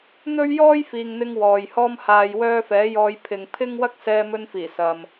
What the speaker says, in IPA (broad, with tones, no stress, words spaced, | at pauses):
n̪ɵ˥ɥ jɔː˥jfiː˨ŋn̪ɪ˧ŋ wɔː˨jhɔː˥mhaː˧jwœː˥ fɛː˨˥jɔː˧jpʰɪ˨ŋ pʰɪ˥ŋwɐ˥k̚ sɛː˧mɵ˧nfiː˨˩ sɐ˨m